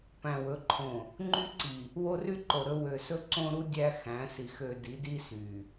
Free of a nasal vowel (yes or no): no